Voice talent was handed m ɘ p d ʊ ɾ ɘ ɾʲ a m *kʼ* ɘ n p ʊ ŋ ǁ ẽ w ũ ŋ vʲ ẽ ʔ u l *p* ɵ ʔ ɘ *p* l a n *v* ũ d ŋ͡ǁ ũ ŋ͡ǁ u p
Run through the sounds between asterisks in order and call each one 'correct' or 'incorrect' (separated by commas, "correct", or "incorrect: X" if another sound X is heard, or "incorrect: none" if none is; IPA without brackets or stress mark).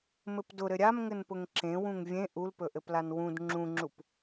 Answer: incorrect: ŋ, correct, correct, incorrect: w